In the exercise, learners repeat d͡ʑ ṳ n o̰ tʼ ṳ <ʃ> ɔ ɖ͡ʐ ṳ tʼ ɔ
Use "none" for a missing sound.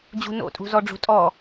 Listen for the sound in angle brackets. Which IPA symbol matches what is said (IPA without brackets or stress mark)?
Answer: z